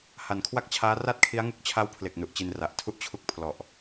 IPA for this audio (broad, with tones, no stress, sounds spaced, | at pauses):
h a˨˩ n kʰ w a˥˩ k̚ t͡ɕʰ aː˦˥ r a˥˩ t̚ kʰ i˦˥ a̯ ŋ u˦˥ k̚ t͡ɕʰ a˦˥ w pʰ l e˨˩ k̚ n u˨˩ ʔ t͡ɕ i˧ n r a˨˩ ʔ tʰ u˥˩ ʔ t͡ɕʰ u˦˥ k̚ pʰ l ɔ˨˩ ʔ